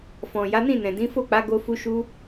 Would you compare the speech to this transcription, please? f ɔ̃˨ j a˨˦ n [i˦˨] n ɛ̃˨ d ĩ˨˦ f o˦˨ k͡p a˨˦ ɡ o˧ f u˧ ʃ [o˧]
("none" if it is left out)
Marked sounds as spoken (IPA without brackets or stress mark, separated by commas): ĩ˦˨, u˧